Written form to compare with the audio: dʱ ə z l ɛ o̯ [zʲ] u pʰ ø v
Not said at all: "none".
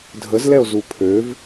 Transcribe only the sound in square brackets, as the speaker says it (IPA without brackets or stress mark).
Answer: z